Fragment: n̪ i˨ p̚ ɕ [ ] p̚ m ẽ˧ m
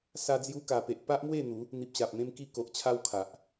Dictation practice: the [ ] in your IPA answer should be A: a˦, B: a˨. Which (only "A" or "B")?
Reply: B